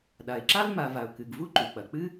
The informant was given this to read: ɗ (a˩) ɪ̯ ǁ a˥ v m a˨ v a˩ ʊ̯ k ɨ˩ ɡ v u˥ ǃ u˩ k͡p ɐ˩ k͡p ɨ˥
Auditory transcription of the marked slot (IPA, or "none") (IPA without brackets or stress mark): a˩